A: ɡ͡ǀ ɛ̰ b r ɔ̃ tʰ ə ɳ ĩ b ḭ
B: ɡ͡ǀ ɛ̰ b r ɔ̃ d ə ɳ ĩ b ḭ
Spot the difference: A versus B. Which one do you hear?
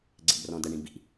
B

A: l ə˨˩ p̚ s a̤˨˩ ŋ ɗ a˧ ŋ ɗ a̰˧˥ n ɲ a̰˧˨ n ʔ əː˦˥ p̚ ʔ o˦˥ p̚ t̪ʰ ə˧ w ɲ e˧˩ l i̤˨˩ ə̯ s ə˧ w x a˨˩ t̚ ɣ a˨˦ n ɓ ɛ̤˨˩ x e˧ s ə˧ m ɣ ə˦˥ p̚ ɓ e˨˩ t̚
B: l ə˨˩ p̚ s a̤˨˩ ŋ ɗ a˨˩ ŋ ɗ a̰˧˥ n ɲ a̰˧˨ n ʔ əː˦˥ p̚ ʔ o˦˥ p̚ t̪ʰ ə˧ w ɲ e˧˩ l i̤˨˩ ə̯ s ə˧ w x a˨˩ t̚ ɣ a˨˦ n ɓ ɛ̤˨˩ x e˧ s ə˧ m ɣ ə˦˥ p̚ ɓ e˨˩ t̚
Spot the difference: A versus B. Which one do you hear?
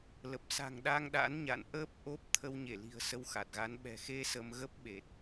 A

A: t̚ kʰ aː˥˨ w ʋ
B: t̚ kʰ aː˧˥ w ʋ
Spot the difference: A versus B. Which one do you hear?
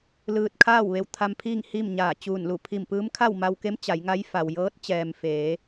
A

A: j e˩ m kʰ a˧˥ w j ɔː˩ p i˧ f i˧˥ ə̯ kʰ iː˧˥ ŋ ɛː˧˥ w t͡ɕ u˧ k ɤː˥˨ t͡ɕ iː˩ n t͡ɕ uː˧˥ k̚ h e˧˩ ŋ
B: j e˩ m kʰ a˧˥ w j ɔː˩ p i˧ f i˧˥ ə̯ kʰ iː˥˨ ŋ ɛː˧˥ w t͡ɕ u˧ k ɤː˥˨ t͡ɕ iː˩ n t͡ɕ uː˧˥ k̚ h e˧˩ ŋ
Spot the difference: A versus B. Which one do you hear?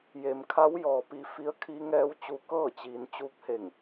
A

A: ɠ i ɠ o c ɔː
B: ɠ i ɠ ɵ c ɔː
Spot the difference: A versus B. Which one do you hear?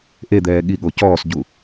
A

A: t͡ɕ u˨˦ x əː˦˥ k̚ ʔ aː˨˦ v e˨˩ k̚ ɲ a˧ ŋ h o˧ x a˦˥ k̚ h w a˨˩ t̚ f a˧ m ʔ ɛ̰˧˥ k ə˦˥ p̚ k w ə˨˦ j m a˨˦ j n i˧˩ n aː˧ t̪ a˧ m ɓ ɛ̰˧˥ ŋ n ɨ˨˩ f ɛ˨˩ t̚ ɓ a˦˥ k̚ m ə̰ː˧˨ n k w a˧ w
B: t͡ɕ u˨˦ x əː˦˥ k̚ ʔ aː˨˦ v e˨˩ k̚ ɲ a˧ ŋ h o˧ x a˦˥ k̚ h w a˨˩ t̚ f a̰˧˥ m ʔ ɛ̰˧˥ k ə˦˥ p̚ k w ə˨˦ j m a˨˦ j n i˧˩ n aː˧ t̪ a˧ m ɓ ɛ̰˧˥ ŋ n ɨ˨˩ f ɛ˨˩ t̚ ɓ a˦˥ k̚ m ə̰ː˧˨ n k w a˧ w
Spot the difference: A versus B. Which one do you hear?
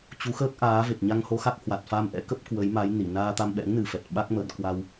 A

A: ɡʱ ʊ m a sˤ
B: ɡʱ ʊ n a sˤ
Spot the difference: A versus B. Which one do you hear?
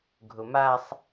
A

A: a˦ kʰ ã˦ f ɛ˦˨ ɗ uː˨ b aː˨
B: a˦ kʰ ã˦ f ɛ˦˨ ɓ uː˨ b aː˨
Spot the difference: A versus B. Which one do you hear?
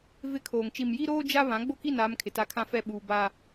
B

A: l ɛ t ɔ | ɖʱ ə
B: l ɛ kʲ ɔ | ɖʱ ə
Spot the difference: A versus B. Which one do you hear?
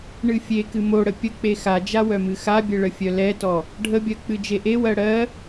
A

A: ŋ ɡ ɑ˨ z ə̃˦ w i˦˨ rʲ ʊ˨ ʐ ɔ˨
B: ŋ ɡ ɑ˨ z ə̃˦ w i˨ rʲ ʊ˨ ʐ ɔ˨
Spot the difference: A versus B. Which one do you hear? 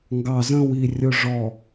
B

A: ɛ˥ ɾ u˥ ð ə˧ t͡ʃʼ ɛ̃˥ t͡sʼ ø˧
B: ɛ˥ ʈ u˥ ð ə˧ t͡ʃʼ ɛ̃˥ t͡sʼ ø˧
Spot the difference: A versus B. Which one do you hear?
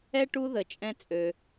B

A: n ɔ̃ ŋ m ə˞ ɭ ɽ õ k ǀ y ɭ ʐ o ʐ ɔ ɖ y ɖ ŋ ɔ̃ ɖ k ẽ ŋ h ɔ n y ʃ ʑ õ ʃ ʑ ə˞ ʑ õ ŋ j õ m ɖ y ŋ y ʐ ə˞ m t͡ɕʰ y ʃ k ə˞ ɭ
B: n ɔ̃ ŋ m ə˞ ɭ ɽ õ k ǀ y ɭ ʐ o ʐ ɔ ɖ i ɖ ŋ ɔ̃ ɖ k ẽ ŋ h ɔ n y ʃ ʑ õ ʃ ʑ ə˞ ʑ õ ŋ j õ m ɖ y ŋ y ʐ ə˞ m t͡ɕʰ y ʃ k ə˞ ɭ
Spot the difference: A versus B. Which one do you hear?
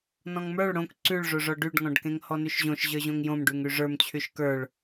A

